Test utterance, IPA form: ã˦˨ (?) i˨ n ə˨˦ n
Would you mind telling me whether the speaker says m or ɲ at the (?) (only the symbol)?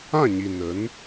ɲ